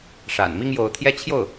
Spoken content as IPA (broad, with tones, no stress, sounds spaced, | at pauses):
ʂ a̰˨˩ n m i˥ ŋ j o˧˥ ʊ̯ t̪ʰ j ɛ˥˧ t͡ɕʰ j o˥˩ ʊ̯